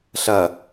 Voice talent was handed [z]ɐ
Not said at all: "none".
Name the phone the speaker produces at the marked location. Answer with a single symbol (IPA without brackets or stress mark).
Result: ɬ